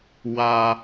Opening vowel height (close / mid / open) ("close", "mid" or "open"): open